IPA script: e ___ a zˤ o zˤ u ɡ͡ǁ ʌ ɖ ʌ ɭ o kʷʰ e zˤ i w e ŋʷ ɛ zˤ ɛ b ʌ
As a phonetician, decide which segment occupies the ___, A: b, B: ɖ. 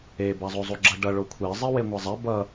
A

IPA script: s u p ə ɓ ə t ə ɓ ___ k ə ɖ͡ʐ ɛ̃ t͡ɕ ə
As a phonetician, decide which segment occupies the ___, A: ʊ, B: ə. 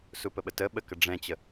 B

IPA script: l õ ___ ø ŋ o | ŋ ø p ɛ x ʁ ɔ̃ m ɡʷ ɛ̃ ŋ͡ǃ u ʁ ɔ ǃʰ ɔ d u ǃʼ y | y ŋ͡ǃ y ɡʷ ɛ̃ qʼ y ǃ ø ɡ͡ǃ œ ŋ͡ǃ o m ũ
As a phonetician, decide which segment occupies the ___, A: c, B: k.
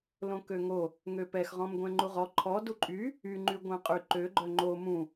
B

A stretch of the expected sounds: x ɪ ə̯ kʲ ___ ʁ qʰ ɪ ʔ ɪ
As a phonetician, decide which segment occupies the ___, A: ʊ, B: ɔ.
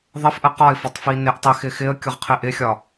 A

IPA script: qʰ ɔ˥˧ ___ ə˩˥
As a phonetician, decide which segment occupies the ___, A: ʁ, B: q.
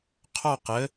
B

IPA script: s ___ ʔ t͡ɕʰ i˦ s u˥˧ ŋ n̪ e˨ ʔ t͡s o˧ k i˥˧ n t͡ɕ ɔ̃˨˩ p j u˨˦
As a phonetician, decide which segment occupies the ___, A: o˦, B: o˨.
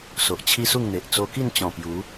B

